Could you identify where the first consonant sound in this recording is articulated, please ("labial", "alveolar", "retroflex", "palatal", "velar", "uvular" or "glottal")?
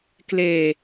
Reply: velar